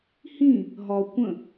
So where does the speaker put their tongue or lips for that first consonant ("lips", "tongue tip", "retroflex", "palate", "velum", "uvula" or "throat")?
throat